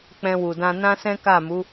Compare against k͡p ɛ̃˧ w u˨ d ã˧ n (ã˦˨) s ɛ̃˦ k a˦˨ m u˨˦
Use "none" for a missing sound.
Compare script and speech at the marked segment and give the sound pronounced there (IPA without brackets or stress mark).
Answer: ã˦